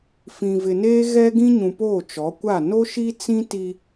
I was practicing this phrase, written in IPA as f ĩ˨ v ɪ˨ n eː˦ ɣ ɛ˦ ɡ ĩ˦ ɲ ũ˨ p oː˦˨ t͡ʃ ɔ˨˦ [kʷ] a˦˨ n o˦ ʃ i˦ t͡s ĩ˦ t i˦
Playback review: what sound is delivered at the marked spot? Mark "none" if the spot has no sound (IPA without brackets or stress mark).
kʷ